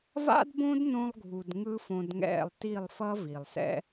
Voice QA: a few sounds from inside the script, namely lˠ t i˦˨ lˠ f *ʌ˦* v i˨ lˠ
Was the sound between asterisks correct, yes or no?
yes